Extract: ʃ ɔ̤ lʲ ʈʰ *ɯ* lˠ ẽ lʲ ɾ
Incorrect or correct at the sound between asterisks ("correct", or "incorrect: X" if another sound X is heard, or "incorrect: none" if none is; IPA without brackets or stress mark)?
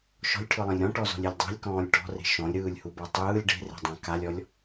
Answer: correct